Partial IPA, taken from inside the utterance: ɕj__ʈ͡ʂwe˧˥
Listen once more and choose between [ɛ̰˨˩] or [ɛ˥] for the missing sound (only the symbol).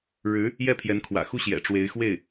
ɛ̰˨˩